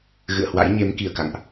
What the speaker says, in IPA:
ɣ ɨ̰˧˨ ə̯ h w a̰˧˥ j ɲ e˨˦ m k i˧˩ ə̯ k a̰˧˨ ŋ ʔ

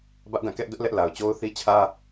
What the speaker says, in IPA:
b ä˦ ʔ d ã˦˨ k ɛ˦ ʔ d ʊ˦ ʔ l ɛ˦ ʔ l a˨ ʊ̯ t͡ɕ o˦ ʊ̯ θ i˦ t͡ɕʰ ä˦

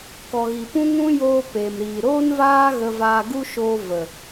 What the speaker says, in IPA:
k ɔ˨ ɣ i˨ p ũ˦ ŋ ũ˦ j oː˧ p e˨ m ɾ iː˨ ɾ oː˦ n v aː˦ ɣ ə˧ v aː˧ ɡ u˦ ʃ oː˧ v ə˨

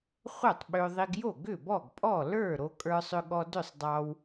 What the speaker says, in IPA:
χʷ œ˥˩ tˤ ɓ ʏ˧ ðˤ i˧ ɡ j o˥˩ ɡ ʏ˥˩ b ɔ˥˩ ɡ pʼ ɔ˥˩ l ə˞˥˩ ɾ o˧ kʼ ə˞˧ sˤ ʏ˧ ɠ ɔ˧ d ʏ˥˩ sˤ dˤ ɑ˧ w

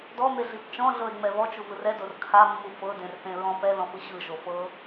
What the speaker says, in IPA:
d ɔ m e ɮ i p t͡ʃ ɔ̃ ɮ ɤ e̯ ŋ͡m ɛ β ɔ t͡ʃ u v ɯ r ɛ d o r kʰ a mː u f ɤ d ẽ r θ ẽ ɹ ɔ̃ p ɛ ð ɔ̃ f ɯ ɕ ɯ ʒ o f ɤ

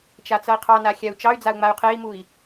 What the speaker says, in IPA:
t͡ʃ a t͡s ʌ i̯ qʰ ɑ n a xʲ a u̯ t͡ʃ ɑ y̯ d͡z a u̯ ŋ͡m a y̯ qʰ e i̯ m u i̯

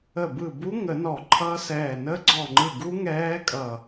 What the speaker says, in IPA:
ə˧˩ b ɯ˧˩ b u˦˥ ŋ ə˨˩˦ n ɔ˨˩˦ ǃʰ ʌ˦˥ s ɛː˧˩ n ə˦˥ ɡ͡ǀ ɔ˧˩ ŋ͡ǃ ɯ˧˩ ɡ u˦˥ ŋ ɛː˦˥ kʼ ʌ˧˩

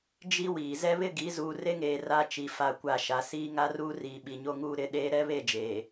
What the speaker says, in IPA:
d͡ʒ i˦ w iː˨ z ɛ˦ β ɪ˦ ɡ i˨˦ z uː˨ r e˦ ŋ eː˨ r a˦ t͡ʃ i˨ f a˦˨ kʷ a˦˨ ʃ a˨ s iː˦ ŋ a˦ r uː˦ r iː˨ ɓ i˨ ɲ o˦ ŋ uː˦ ɾ ɪ˦ ɗ eː˦ ɾ ɛ˦ β e˦˨ d͡ʒ eː˨

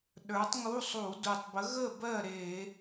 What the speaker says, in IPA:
ɗ ə˞˨˥ tˤ ŋ u˧˥˧ sˤ u˧˩˧ d u˨˩ tˤ b ə˨˥ ɣ ə˥˨ b ɜ˥˨ ɾ e˧˩˧

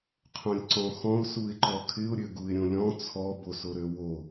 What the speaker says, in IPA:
qʰ õ lʲ ǀ ɔ̃ x ɔ̃ ʊ̯ s u ɪ̯ ǃ ɔ kʰ ɪ ʊ̯ ɾʲ ø ɡ u ɪ̯ ɾʲ õ lʲ ɔ̃ t͡sʰ ɔ b o s o ɾ ø w o

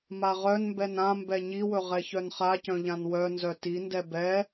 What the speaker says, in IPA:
m a ʁ œ n m b ɛ n ã m b ɛ ɲ i w ɵ ʁ ɛ ç œ n χ a c œ̃ ʎ ã n w œ n z œ t i n d ɛ b ɛ

